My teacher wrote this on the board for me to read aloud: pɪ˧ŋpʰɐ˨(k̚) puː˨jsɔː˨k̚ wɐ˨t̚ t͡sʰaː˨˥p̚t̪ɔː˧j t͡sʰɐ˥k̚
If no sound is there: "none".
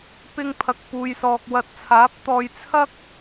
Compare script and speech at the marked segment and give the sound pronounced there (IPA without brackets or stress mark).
k̚